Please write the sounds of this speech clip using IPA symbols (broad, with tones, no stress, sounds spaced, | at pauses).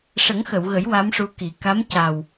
ʂ ə˨˩˦ ŋ x ə˨˩˨ w ɣ ə˨˩˦ j w a˧˥ m ʂ u˧˥ k i˨˩˦ k a˧˥ m c a˨˩ w